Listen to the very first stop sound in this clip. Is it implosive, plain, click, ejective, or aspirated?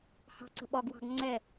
click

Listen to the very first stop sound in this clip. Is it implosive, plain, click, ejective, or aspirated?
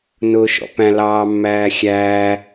plain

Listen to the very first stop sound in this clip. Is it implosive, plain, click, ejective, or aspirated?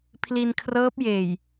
aspirated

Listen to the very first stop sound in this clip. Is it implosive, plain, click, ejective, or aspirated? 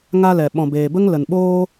implosive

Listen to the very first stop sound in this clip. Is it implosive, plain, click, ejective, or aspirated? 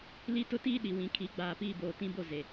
plain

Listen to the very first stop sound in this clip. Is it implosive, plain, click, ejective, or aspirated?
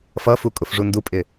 ejective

